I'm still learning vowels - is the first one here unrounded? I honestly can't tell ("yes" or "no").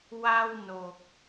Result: yes